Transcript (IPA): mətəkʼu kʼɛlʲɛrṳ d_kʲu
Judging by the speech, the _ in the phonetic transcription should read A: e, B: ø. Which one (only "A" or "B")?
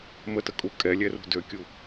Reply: B